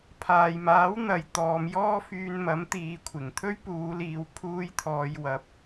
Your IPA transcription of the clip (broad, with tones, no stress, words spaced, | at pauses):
pʰaː˨jmaː˨˥w n̪ɐ˨˧jt̪ɔː˨˧mjɔː˥fyː˧n mɐ˨˥mt̪iː˨˧kʷʰɪ˨˩ŋ t̪ʰɵ˥ɥpuː˨˧liː˨˧w pʰuː˨˧j t̪ʰɔː˨˧jwɐ˨˥p̚